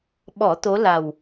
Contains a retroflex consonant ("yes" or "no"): no